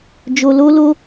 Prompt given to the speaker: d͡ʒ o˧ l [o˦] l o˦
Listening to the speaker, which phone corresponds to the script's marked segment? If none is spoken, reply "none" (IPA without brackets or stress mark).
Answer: o˦